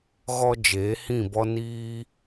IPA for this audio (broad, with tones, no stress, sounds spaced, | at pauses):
ɣ ɔ˧ d͡ʒ eː˨˦ h ĩ˦˨ b ɔ˦ n iː˦